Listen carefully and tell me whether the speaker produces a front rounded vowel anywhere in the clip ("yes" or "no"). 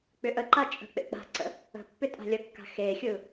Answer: yes